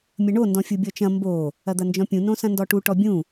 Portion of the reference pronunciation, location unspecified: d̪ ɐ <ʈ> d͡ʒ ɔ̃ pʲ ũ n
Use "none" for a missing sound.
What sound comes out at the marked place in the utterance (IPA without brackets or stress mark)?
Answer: n